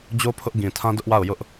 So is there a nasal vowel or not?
yes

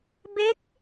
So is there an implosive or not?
no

